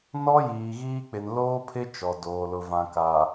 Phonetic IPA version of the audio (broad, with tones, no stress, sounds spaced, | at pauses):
n ɔ˦ j iː˨ ɣ iː˦ k͡p ɪ˨ n l oː˦ pʰ ɪ˦ t͡ʃ ɔ˨ d oː˨ l ʊ˨ v ã˨ k a˨